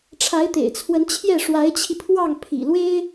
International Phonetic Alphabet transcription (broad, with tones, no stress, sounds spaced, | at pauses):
ʈ͡ʂʰ a˧˥ ɪ̯ t̪ ḛ˨˩ ɪ̯ t͡sʰ w ə˧˥ n t͡ɕʰ j ɛ˥˩ ʂ w a˧˥ ɪ̯ t͡ɕʰ i˧ pʰ w ɑ˥˩ ŋ pʰ ḭ˨˩ l w e˥ ɪ̯